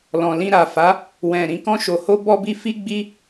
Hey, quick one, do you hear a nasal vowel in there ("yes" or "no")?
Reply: yes